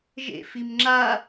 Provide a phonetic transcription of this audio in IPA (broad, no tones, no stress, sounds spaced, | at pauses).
ʒ ḛ f i m ŋ͡ǁ a